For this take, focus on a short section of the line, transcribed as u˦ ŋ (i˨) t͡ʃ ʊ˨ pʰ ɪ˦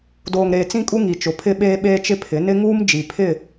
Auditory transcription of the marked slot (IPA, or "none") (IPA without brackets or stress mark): i˨